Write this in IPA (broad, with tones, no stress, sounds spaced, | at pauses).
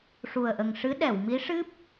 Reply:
ʂ u˨˩ ə̯ ʔ ə˨˩ ŋ ʂ ɨ˧˥ ɗ ɛ˨˩˨ w m i˧˥ ʂ ɨ˦˥ p̚